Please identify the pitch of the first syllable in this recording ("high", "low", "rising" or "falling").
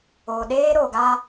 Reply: low